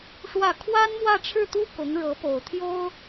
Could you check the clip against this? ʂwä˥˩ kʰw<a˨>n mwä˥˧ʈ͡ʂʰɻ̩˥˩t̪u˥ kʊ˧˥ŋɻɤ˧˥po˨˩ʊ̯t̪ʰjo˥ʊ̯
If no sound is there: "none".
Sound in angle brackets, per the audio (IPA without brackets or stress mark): a˥